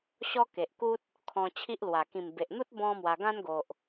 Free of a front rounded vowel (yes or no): yes